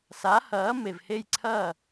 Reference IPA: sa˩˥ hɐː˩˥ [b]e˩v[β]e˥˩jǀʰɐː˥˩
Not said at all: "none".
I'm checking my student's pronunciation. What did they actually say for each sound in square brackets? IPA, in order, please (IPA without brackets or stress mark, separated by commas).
m, h